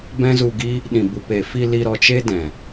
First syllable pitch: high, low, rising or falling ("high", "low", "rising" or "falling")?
high